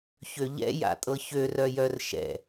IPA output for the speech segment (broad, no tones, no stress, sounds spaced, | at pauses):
ç ø ʎ ɛ̰ j a̰ tʼ ɤ ç ø r œ j œ r ʃ ɛ̰